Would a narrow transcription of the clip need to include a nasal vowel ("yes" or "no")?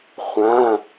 yes